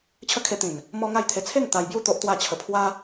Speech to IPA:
t͡ɕʰ ə˦ kʰ e˧ t̪ ĩ˨˩ n | m ɔ˦ ŋ a˥˧ j t̪ʰ e˧ t͡sʰ e˥˧ ŋ t̪ a˧ j b j u˥˧ t̪ o˦ ʔ t̪ w a˥˧ t͡ɕʰ ə˧ pʰ w a˦

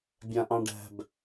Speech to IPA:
bʲ ã ʔ ɑ̃ ɖ æ̤ b

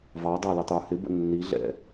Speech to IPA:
v ɑ dˤ ɑ l ə tˤ ə˞ h ɪ b ə̰ nː i ɮ ɛ̰

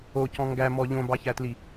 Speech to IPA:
o c ɔ̃ ŋ ɡ æ m ɔ ʎ õ b ɑ ç æ t l i

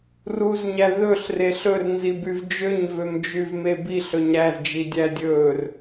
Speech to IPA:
r u z ɲ æ ð ɵ ɬ r e ɬ ɵ r n z i b y v d͡ʒ ø ɲ v ø m d͡ʒ y v m e b i ɬ ɵ ɲ ɾ æ z d͡ʒ i dʲ æ dʲ ɵ r

